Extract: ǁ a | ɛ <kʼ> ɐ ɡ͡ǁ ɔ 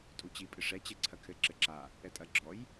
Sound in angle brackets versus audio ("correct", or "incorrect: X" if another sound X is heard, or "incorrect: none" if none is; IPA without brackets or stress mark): incorrect: tʼ